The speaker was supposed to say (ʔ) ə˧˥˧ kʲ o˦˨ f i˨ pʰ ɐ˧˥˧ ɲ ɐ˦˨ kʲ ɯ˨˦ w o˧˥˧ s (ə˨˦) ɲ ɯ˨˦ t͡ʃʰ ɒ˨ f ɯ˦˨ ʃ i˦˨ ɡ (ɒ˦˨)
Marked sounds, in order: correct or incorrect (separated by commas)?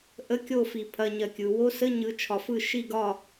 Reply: correct, incorrect, correct